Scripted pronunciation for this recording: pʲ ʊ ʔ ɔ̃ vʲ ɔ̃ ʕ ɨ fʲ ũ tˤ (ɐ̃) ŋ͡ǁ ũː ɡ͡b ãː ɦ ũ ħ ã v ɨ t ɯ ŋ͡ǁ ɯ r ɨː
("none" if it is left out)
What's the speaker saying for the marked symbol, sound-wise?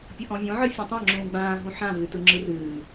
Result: ã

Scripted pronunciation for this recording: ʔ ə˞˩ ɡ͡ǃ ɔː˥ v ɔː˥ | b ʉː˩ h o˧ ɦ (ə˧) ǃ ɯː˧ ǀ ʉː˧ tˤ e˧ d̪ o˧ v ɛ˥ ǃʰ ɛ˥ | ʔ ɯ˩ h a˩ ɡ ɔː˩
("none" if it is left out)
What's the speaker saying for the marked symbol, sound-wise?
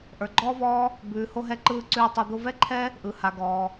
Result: ɛ˧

